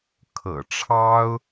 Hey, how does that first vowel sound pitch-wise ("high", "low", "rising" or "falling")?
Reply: low